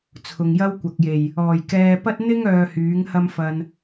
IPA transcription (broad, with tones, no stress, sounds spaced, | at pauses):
t͡sʰ ʊ˨ ŋ j ɐ˥ w kʷ ɐ˨ k̚ j e˨˩ j | ɔː˨˩ j k ɛː˧ p ɐ˥ t̚ n̪ ɪ˥ ŋ œː˨ h yː˨˥ ŋ h ɐ˥ m f ɐ˧ n